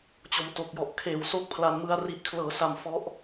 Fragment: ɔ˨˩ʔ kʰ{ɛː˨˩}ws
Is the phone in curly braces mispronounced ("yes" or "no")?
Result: yes